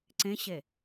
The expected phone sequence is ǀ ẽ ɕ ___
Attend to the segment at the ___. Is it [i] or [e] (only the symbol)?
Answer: e